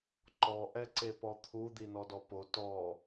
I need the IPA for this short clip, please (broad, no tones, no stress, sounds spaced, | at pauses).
ǃ ɔ ʔ ɛ ǀ e p ɔ t̪ʰ u d̪ i n ɔ d ɔ p o t ɔ